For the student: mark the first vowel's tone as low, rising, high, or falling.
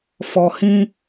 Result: low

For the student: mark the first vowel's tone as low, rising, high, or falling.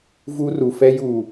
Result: high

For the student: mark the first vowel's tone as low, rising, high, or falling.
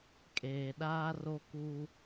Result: low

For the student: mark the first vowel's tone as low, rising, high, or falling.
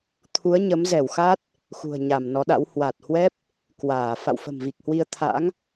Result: rising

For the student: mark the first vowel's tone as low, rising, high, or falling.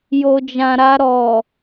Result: low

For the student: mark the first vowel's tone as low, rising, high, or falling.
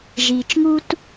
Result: low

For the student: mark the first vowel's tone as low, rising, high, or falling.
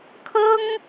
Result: high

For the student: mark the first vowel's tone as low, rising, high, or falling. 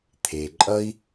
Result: low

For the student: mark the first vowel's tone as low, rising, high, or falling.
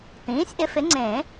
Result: rising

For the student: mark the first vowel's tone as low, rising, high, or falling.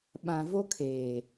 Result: low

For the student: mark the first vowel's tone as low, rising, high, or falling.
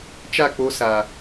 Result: falling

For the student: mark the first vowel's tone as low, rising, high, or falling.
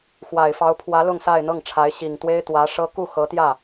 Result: low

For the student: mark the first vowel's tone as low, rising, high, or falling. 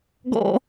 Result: high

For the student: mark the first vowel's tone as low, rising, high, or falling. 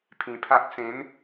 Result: low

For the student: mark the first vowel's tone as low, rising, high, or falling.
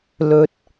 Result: low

